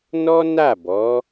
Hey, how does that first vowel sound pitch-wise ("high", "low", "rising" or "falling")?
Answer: high